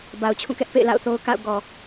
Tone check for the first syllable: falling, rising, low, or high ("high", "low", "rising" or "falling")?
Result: low